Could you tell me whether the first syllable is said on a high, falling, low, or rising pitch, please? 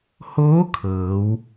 rising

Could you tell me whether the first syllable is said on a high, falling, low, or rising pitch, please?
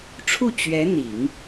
falling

